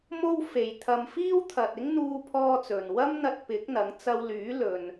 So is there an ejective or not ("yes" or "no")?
no